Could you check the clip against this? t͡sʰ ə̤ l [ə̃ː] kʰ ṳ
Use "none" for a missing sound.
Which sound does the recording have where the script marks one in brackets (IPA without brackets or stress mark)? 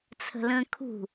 ə̃ː